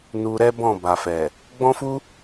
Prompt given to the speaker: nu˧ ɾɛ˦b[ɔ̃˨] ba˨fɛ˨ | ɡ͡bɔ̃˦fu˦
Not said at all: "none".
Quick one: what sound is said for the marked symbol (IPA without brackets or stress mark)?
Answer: ɔ̃˦˨